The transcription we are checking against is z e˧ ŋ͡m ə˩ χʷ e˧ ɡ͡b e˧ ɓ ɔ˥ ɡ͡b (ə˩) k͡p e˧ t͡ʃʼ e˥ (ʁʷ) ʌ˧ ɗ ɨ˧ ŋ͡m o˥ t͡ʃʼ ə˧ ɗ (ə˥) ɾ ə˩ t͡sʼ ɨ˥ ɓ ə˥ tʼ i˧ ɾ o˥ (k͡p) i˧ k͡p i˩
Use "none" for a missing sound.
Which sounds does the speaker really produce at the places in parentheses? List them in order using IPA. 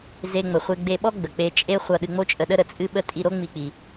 ə˩, χʷ, ə˥, ŋ͡m

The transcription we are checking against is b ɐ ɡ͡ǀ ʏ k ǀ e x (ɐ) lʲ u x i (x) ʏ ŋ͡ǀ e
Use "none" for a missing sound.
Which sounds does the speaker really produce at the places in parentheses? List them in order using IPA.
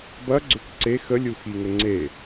ə, ŋ

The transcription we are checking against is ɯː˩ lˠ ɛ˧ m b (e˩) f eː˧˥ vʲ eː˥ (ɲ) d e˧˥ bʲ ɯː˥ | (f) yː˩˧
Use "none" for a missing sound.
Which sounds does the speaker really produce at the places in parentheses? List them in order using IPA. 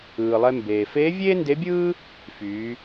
eː˩, n, f

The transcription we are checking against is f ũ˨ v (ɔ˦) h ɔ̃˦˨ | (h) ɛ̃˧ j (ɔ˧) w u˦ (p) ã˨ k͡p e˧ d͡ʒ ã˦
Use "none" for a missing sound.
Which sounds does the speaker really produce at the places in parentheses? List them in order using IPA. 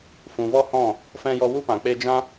ɔ˦, f, ɔ˧, p

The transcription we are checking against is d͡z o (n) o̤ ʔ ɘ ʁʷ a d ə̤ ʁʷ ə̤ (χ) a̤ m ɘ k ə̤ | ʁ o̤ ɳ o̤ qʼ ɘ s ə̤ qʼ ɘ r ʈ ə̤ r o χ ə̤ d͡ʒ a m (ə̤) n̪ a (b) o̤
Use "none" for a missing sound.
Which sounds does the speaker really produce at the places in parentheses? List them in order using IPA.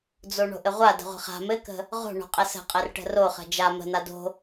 ɳ, χ, ə̤, d

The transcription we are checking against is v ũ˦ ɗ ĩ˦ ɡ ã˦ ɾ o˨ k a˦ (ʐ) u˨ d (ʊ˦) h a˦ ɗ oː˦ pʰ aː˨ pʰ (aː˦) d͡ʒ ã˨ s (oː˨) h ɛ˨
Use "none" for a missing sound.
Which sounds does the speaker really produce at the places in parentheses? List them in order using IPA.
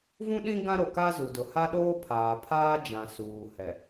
z, ʊ˨, aː˦, uː˨

